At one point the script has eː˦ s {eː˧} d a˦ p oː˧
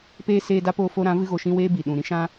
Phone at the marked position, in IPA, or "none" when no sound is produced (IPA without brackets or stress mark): eː˧